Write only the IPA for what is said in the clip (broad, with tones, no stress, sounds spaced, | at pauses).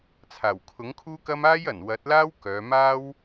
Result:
t͡sʰ aː˨˩ w kʰ ʊ˨˥ ŋ kʰ uː˥ k ɐ˥ m aː˥ j ɐ˨˩ n w ɐ˨˥ t̚ l aː˥ w k œː˨˧ m aː˥ w